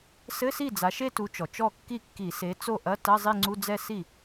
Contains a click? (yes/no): yes